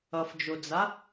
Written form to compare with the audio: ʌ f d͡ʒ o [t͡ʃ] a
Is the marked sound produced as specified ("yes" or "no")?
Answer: no